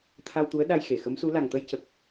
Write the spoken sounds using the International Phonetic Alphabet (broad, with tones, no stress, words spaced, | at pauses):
t̪ʰa˧wt̪u˧˥ə̯ ɗa˧jxe˨˩˨xə˧˥msu˧˥ la˨˩ŋt̪ə˧jcə˨˩k̚